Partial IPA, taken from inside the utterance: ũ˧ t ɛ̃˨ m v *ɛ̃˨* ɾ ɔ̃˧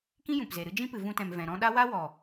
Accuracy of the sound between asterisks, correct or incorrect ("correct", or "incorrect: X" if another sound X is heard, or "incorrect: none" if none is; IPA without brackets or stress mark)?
correct